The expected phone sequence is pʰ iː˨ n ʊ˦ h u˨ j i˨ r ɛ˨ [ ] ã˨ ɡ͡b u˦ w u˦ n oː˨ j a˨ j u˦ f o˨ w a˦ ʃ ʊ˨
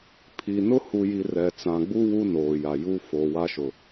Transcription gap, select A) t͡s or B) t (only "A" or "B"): A